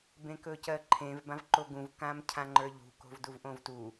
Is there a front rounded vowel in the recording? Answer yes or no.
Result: no